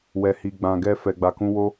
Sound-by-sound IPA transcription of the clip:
w ɛ˨ h i˨ ɡ͡b ã˨ ɡ ɛ˧ f ɛ˨ ɡ͡b a˨ k ũ˧ w o˦

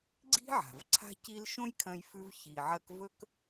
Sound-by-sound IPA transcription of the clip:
ɡ͡ǀ i̤˦ ʕ a̤˩ v ǀʰ a̤˥ c i˦ l ʃ õ˥ j kʰ ɐ̃˦ j f ʉ˦ v ç i˨ ʕ ɐ˦ k v ɵ˥ k

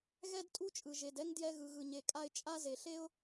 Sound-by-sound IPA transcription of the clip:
ɣ ɛ˥ d tʼ u˥ t͡ʃʼ ɯ˩ ʒ e˩ d ɛ˥ ŋ d j ɛ˧ ɣ ɯ˩ ɣ ɯ˩ ɲ e˩ kʼ a˧ ɪ̯ t͡ʃʼ a˥ z e˩ ɬ e˥ ʊ̯

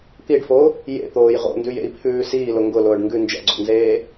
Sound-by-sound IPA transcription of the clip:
t̪ i ɖ f o | j ḛ t̪ oː j ʁ o̰ n d ʉ j ḛ i̯ pʰ ʉː s iː l ʊ ŋ ɡ ʊ l ʊː ɖ ŋ ɡ ʉ n d͡ʒ ɛ̰ ɡ͡ǀ o̰ n z eː

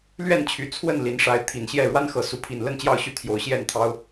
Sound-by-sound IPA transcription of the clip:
l ɥ ɛ˥˨ n t͡ɕʰ y˨˩ t͡sʰ w ə˥˨ n l i˨˦ n ʂ a˨˦ ɪ̯ t̪ʰ i˨˩ n ɕ j ɛ˥˨ ɻ w a˦ n x ɤ˨˩ s u˨˦ pʰ i˨˩ n l ə˥˨ n t͡ɕ j ɑ˥˨ ʊ̯ ɕ y˥˨ t̪ʰ j o˨˦ ʊ̯ ɕ j ɛ˥˨ n t̪ʰ ɑ˦ ʊ̯

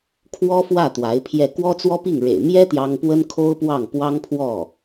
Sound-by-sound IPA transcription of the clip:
kʰ w ɔ˥ f w ä˥˩ t̪ w a˧˥ ɪ̯ pʰ j ɛ˥˩ k w ɔ˥ t͡s w ɔ˥ p i˥˩ ŋ ɻ ḛ˨˩ ɪ̯ m j ɛ˥ t̪ j ɑ˥ ŋ p w ə˥ n kʰ o˥ ʊ̯ p w ɑ˥˩ ŋ p w ɑ˥ ŋ pʰ w ɔ˥˩

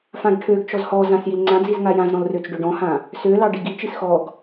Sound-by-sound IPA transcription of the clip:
f ã ɡ ʈʰ ø ɡ t͡ʃ ɔ z h ɔ z ã s j i l ŋ͡ǀ ã d͡z i z ŋ a j ã z ɾ ɔ̃ l r ø t͡s ɖ ø ɖ ɔ̃ h ã | s ø l ɑ ɖ i ɡ i t͡ʃ i s x ɔ ɡ

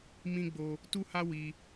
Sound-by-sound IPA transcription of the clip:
m ĩ˦ ɡ͡b o˦ | t u˦ h a˦ w i˦

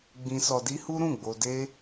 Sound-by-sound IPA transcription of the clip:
ɡ͡b ĩ˧ s ɔ˧ d i˦ h u˦ ɾ ũ˦˨ ɡ͡b o˧ d e˦

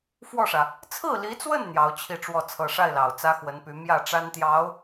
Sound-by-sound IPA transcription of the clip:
f w ɔ˥˩ ʂ ä˩ | t͡sʰ ɹ̩˥˩ l i˧˥ t͡s w ə˥˩ n n̪ j ɑ˧˥ ʊ̯ t͡ɕʰ i˥˧ ʈ͡ʂ w ɔ˥˩ t͡sʰ ɤ˨˩ ʂ a˥˩ ɪ̯ l ɑ˨˩ ʊ̯ t͡s ä˥ x w ə˧˥ n p y˧˥ m j ä˥˩ ʈ͡ʂ a˥ n t̪ j ɑ˧˥ ʊ̯

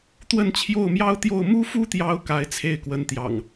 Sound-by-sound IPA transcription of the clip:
t̪ w ə˥˨ n t͡ɕʰ j o˥˨ ʊ̯ m j ɑ˦ ʊ̯ t̪ j o˥˨ ʊ̯ m u˦ f u˦ t̪ j ɑ˨˦ ʊ̯ k a˨˦ ɪ̯ t͡sʰ e˥˨ ɪ̯ k w ə˨˦ n t̪ j ɑ̰˨˩ ŋ

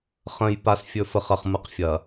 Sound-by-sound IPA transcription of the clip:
χ ə̃˨ j p a˨ s fʲ ɵ˨ f ə˨ χ ɐ˨ χ m ɯ˨ q fʲ ɐ˨

